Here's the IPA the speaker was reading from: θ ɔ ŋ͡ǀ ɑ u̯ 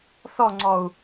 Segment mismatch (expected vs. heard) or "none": ɑ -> ɔ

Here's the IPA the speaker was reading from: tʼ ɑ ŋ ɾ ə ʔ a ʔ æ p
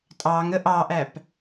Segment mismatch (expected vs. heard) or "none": a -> ɑ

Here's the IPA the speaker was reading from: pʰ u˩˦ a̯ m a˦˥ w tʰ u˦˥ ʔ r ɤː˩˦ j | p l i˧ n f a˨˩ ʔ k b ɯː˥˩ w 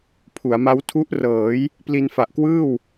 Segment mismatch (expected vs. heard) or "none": b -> w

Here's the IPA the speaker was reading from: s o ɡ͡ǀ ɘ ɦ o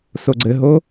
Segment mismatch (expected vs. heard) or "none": none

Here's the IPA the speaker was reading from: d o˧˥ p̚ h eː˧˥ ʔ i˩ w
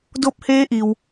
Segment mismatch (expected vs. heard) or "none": none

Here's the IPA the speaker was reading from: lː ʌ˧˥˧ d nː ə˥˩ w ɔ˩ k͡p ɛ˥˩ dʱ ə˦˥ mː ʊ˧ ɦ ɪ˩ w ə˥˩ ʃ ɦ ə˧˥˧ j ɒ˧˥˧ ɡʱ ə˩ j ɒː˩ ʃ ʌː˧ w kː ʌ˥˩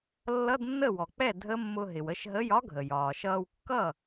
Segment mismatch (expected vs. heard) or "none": ɒ˧˥˧ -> ɒ˦˥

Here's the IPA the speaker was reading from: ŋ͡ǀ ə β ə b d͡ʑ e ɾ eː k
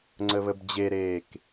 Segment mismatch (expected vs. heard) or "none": none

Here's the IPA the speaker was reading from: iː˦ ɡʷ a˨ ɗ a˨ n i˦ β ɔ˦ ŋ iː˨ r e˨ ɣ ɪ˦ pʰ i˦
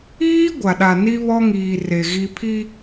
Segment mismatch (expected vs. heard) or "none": ɪ˦ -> i˦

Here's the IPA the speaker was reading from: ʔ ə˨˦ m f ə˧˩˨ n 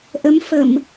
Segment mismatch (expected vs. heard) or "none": n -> m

